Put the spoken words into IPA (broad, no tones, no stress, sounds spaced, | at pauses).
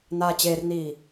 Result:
n aː t͡ɕ eː r n iː